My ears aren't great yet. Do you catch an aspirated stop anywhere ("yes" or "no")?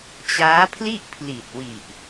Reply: yes